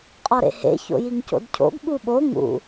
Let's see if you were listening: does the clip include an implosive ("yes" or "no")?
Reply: yes